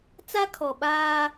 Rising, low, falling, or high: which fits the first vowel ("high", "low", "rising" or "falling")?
high